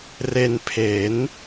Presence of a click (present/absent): absent